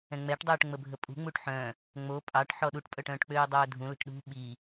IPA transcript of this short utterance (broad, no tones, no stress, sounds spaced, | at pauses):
ɛ̃ ŋ͡m ɛ ʈ dˤ əː ʈ ŋ͡m ə bʱ ə pʼ ṳ ŋ͡m u ʈ ħ œ̃ | ŋ͡m o pʼ ɑ ʈ ħ ɔ ɗ u ʈ pʼ œ ʈ œ̃ː ʈ k͡p øː dˤ œː dʱ ũ l ə̤ ʈ ɗ ṳ ɓ i